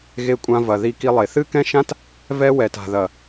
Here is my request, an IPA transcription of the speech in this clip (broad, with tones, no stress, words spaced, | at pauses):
ɣe˧kʷʼã˧ vɐ˨ ði˧ki˧lˠe˨ θɨ˦kɛ̃˦ʃã˦t | vɛ˦ wɛ˨ta̤˨ðɐ˨